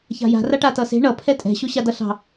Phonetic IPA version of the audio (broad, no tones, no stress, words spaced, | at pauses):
ça̤ja̤ raʈatʌse̤ ɳʌ pʰɛtʼɛ̤ ɕoɕadʌɬɑ̤